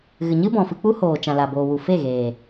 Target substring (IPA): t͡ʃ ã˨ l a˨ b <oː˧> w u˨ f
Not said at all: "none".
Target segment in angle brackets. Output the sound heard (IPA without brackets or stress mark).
oː˨